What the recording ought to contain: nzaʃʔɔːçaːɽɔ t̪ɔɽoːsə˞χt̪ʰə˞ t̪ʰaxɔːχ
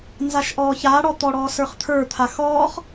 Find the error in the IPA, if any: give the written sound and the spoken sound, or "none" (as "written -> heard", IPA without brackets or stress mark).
oː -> ɔː